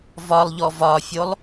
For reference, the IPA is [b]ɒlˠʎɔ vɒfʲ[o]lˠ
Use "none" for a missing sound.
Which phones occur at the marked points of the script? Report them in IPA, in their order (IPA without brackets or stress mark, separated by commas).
v, o